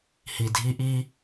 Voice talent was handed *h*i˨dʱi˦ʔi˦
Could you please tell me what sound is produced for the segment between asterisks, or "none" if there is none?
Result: h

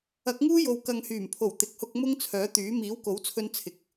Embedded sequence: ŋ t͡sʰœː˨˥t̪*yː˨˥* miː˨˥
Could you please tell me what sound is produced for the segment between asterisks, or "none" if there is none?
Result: yː˨˥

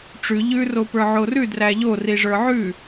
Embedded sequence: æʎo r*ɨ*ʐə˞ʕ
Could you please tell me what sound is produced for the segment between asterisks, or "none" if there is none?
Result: i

